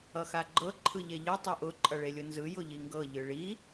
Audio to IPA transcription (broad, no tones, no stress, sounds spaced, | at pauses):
ʌ x a ɡ͡ǃ ɤ ǃʰ ɯ ʎ e ʎ ɯ tˤ e ʔ ʊ ǃʼ ʌ ɭ e lʲ ʊ n z ɯ j ʊ ʎ i ŋ ɡ ɤ ʎ ɯ ɭ i